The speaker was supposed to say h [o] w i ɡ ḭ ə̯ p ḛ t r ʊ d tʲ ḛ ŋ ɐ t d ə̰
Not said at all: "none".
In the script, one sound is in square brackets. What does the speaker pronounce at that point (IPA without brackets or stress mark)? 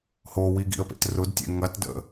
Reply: o